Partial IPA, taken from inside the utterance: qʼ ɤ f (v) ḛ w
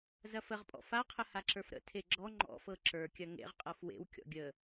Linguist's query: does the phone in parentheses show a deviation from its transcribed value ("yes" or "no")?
yes